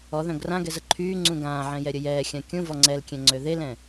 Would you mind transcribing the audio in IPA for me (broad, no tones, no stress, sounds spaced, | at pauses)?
ɔ ð œ̃ ɡ r ã ɡ ɛ z ə ǃʰ yː ŋ͡ǀ ũ ɡ ãː ʕ ɛ̃ j ɛ ɾʲ ə j ɛː xʲ ã kʲ ũ v ɔ ŋ͡ǀ ɛ l kʲ ɛ̃ ŋ͡ǀ ø ð e l ɛ̃